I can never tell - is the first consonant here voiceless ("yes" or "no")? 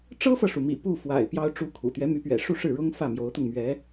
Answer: yes